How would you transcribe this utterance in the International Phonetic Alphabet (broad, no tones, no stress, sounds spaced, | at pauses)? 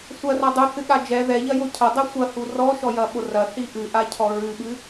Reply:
sʷ ɐ r ɐ dˤ u θ ɨ ɠ a d͡ʒ ɛ ð ɛ ʎ ɐ j o cʰ ɐ dˤ ɛ sʷ ɐ h u r ɔ ʃ ɔ j ɐ ɓ o r ɐ θ i ʔ ɨ ʔ a cʰ ɔ ɹ ɨ ɓ ɨ